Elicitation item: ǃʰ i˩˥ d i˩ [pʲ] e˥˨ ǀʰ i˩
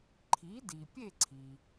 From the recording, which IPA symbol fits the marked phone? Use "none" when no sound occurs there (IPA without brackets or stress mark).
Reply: pʲ